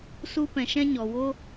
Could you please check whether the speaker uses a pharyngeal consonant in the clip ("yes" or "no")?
no